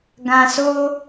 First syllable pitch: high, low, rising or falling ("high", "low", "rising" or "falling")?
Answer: low